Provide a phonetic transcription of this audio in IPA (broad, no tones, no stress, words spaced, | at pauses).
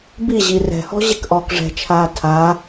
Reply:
bi ʑirɛ̤hɔ̤ ʑekʔɔːkʐɛ̤t͡ʃʰaː tʰa